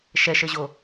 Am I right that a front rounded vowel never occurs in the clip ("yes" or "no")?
yes